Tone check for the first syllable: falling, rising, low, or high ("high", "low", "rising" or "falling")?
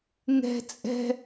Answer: high